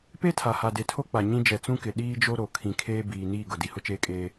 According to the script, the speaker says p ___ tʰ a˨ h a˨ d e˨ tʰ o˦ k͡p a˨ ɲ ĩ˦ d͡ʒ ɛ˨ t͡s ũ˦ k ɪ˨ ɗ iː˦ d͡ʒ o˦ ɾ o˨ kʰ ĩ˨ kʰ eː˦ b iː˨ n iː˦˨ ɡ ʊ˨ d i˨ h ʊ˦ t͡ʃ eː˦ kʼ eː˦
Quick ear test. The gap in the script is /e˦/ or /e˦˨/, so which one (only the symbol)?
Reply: e˦